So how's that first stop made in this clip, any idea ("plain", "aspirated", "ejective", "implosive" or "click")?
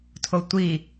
aspirated